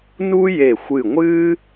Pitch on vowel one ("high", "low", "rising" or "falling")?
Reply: high